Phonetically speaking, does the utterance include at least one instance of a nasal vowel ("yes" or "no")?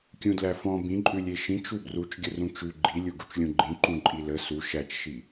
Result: yes